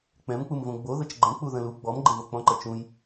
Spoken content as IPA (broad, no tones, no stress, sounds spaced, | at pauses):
k͡p ɛ̃ m k͡p u m v õ ɡ͡b o ð ə t͡ʃ ɡ͡ǃ ə̃ k͡p u ð ə̃ l u ɡ͡b ɔ m ɡ͡ǃ ə̃ v o k͡p ɔ̃ ǃ ə t͡ʃ ũ j